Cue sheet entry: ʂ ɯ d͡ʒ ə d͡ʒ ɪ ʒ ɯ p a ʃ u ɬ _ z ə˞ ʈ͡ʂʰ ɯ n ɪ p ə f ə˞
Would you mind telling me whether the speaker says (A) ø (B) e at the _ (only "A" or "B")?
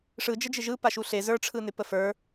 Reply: B